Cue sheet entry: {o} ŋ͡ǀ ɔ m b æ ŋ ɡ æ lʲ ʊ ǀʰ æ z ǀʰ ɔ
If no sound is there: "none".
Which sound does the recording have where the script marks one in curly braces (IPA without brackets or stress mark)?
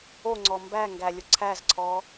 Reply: o